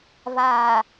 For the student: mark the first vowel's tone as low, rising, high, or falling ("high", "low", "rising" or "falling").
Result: low